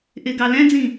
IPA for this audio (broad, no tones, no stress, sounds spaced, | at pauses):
ʔ ɪ ɡ ɑ l ɛ̃ d͡z ĩ